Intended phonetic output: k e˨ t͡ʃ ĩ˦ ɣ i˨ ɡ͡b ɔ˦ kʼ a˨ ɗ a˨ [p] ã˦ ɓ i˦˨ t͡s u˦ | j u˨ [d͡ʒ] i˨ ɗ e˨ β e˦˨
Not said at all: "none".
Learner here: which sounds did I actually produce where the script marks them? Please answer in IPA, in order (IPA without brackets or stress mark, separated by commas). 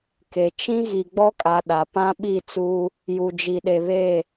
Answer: p, d͡ʒ